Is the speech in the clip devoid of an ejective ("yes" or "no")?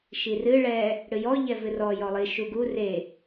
yes